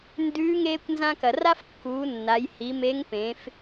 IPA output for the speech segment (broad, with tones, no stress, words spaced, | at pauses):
ndʉː˧˥ ŋeː˧kʷnzã˧kɐ˩ ra˥fkːuː˩˧ nːa˩˧jhi˩˧me˧˥ŋ pẽ˩˧f